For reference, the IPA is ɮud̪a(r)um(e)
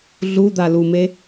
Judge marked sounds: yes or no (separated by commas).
no, yes